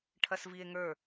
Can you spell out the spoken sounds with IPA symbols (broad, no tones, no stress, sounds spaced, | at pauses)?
ʈʰ ɐ s v i e̯ ŋ ə˞